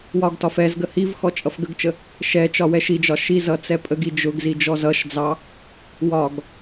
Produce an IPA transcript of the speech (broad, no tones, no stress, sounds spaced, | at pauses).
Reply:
w ɒ ɡ t ɒ f ɛ z ɡ ə h i v x ɔ t͡ʃʼ ʌ f ɡ ə ɡ t͡ʃ ə | ʃ ɛ t͡ʃ ɒ w ɛ ʃ i d͡ʒ ɒ ʃ i z ʌ t͡s ɛ pʼ ə ɡ i d͡ʒ ʊ ɡ z i d͡ʒ ɔ z ʌ ʃ d͡z ɑ | w ɒ ɡ